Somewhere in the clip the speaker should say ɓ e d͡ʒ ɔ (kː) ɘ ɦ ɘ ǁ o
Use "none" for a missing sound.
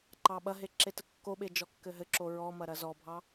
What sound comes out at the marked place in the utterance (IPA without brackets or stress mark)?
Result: kː